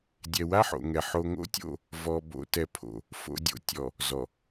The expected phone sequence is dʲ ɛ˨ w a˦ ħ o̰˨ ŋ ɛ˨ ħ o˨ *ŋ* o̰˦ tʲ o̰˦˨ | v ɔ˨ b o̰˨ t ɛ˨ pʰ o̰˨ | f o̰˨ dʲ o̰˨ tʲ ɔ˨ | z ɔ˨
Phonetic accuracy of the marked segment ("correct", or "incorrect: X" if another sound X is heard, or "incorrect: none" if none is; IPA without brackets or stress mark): correct